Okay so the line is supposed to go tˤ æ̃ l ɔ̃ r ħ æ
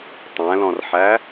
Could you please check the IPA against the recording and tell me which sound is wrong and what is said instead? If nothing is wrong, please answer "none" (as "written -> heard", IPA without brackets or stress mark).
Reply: none